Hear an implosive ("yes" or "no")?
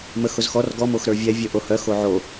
no